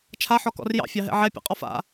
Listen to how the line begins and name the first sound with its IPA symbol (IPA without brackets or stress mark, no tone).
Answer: t͡ʃʰ